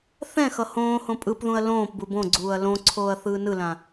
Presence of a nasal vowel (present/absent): present